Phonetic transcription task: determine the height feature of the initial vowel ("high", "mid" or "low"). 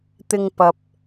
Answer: high